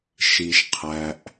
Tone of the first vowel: low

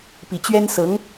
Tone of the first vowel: low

